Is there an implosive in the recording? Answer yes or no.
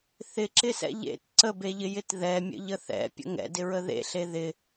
no